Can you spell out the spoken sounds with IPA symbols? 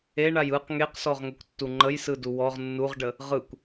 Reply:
e ɳ a j ɯ q ŋ e q s ɔ ʁ ŋ ə kʷ tː u ŋ͡ǃ ə j s ɯ d u w ɔ ʁ nː u ʁ ɖ ə | ʁ ɯ kʷ

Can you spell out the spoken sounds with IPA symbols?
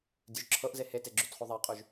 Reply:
dʲ ʉ ʒ ǁʰ ɤ ʔ z e h e t e ɡ͡ǁ ʉ t χ u ðˤ a qʼ ʉ ʒ

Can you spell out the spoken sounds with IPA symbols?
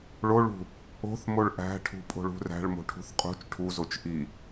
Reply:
ɭ o ɭ ṳ | o̤ θ m o ɭ ʔ æ̤ ʈʰ ṳ pʼ o̤ ɭ ṳ r æ̤ ɭ m o̤ ʈʰ ṳ θ qʼ ṳ t͡ʃ ʈʰ u z o t͡ʃ ʔ i

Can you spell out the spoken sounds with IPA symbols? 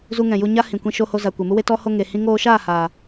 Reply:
z u˧ ŋ ɛ̃˨ j u˧ ɲ a˦ h ĩ˨ kʷ ĩ˧ ʃ o˧ h o˧ z a˨ kʷ e˨ m u˦ w e˦ t ɔ˧ h o˧ ŋ e˨ h ĩ˧ ŋ oː˧ ʃ aː˦˨ h aː˨

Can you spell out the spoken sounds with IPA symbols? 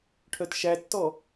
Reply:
ʈʰ œ t ʃ æ tː ɔ

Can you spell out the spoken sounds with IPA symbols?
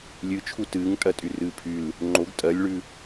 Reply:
lʲ ɨ t͡ʃʰ u t ɨː ŋ tʼ ɜ tʼ y r ɨː pʰ y l | ŋ͡ǃ o ɡ tʼ ɜ lʲ ɭ ʉ

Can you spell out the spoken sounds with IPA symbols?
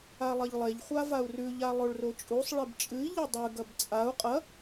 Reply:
a lˠ ɐ ʎ lˠ e ʎ χʷ a v a u̯ r ʉ ʎ a lˠ o ɭ r o t͡ʃʼ u sˤ ɭ e b t͡ʃʼ ɨ i̯ ʎ ɐ dˤ ʉ ɡ ɐ b t͡sʼ a u̯ qʼ ɐ

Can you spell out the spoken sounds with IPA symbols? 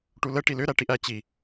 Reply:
ʈ u l ə ʈ i l ʏ ɾ æ ʈ i ʔ æ t͡ɕ i

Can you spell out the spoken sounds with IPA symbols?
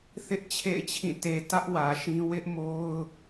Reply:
θ ɪ˦ ʔ t͡ɕʰ ḛ˦˨ ɪ̯ t͡ɕʰ ĩ˦˨ t e˨ t ä˦ ʔ w ä˨ ʃ ĩ˦ w ɪ˦ ʔ m o˦ ʊ̯

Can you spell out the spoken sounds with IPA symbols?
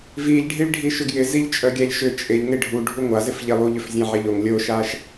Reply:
v i ʎ ɖʱ i ɭ ɖʱ i ʃ ʏ ɡ j ɪ z i ʎ t͡ʃʼ œ ɡʲ a ʎ ʃ ʏ t͡ʃʼ ɪ ʎ ŋ e ɖʱ u ɖʱ u ŋʷ a z ɪ f ʎ e lˠ u ʎ ʏ f zʲ ã ʕ ɪ ʎ o ŋ lʲ o ʃ a ʃ

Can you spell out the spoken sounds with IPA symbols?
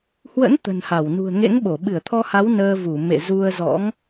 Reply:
h w ə̰˧˥ n t̪ ə̤˨˩ n h a˧˩ w n ṳ˨˩ ə̯ ŋ ḛ˧˥ ŋ ɓ o˧˩ ɓ ɨ˧˩ ə̯ t̪ʰ ɔ˧ h a˨˦ w n əː˧ v u˧˩ m ḛ˧˨ z u˧ ə̯ z ɔ̰˧˥ ŋ

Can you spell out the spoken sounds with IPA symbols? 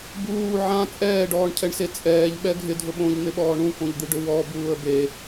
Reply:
b uː ʕ ã t͡sʼ ɛː ɖ ɔː ɳ cʰ ɛ ɳ s e t͡sʼ ɛː ʎ ɓ ɛ ɡʱ ɪ dʱ ʊ ɓ õ ʎ n̪ ɪ ɓ ɔː ɳ ũ k õ ʎ d̪ i ɖ ʊ w ɔ b uː ə̯ b e

